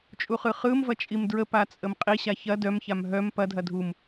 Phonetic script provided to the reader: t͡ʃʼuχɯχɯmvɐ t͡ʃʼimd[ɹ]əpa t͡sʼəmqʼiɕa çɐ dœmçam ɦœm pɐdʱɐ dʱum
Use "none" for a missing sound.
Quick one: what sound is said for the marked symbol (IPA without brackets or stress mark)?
ɹ